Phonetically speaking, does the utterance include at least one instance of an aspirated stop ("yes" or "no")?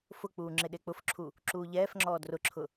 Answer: yes